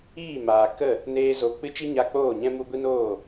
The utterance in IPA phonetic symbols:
iː˦˨ m aː˨ k ə˦˨ | n eː˦ z o˧ k͡p ɨ˦ t͡ʃ i˦ ɲ a˧ k͡p oː˦˨ ɲ ɛ̃˦ m u˦ ɡʷ i˦ n oː˦˨

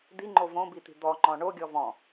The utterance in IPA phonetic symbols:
d̪ i ŋ͡ǃ o v õ b i t̪ i̤ d̪ ɔ ŋ͡ǃ ɔ̃ ɳ o ɡʲ ɔ v ɔ̃

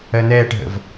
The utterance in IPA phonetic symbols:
ɜ n ɛː ʈ ɦ ə̰ v

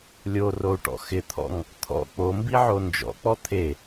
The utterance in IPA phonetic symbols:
lʲ o r o u̯ ʈ ɔ̰ x ɪ t̪ʰ ɔ̰ ŋ | t̪ʰ ɔ̰ k͡p o m b i ʕ o n d͡ʒ ɔ̰ k͡p ɔ t̪ʰ e

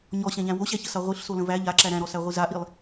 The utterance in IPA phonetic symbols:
ɲ ɔ ɕ æ̃ ʎ æ̃ w o ɕ æ ç ə s a ʁʷ i ɬ s o l ə̃ v æ ʎ a ǁ æ ɾ æ̃ ɾ ɔ s æ ʁʷ i z a ʔ i lˠ

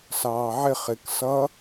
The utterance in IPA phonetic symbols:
s ɑː ʕ ɪ χ ɪ k s ʌ

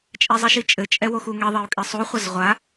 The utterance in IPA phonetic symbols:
t͡ʃʼ ɛ zˤ i ʃ i t͡ʃʼ ɘ t͡ʃʼ ɛ w o x u ŋ e ðˤ e u̯ kʼ i sˤ u χʷ ɐ z ʁʷ a

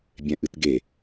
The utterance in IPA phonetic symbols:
bʲ ɛ̃ ʔ ɨ t ɡ e

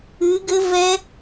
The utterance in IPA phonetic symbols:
ɨ˨˦ ɡ ɘ˦˥ v ɛ˦˥

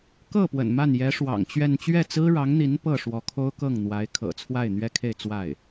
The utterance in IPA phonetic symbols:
k ɤ˥˩ p w ə̰˨˩ n m a˥˩ n j ɛ˧˥ ʂ w ɑ̰˨˩ ŋ t͡ɕ ɥ ɛ˥˧ n t͡ɕ ɥ ɛ˥˩ t͡s ɹ̩˥ ɻ ɑ˧˥ ŋ n̪ i˧˥ n p ɤ˥˩ ʂ w ɔ˧˥ kʰ o˥ ʊ̯ k ɤ˥˩ ŋ n̪ w a˧˥ ɪ̯ kʰ ɤ̰˨˩ t͡sʰ w a˥˩ ɪ̯ n̪ ɥ ɛ˥ kʰ e˥˧ ɪ̯ t͡s w a˥˩ ɪ̯

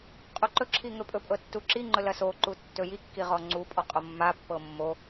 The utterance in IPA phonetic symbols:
qʼ u ǃ ɵ ǁʰ i ŋ ɵ pʼ ɵ pʼ ɤ tː u ǁ i ŋ͡ǃ ɵ l ɐ s o ǃ u tː ɵ j i kː i ʁ ɔ ŋ͡ǀ u pʼ ɔ qʼ o mː a pː ɤ mː o

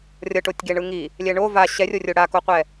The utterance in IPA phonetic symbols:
rʲ ʌ ʈ o tʲ ɡ e ɳ ɯ ŋ i | lʲ ɛ ɳ o v a ɕ ɛ rʲ o rʲ o ɽ a k o qʷ ɛ

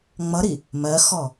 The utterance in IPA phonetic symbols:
ŋ͡m ʌ ɾ i | m ɜ x ɔ

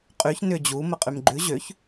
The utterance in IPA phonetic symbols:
qʼ y ç n ʏ d͡ʑ u m ə qʼ y m ɡ͡ǃ ʉ ʑ ø ç

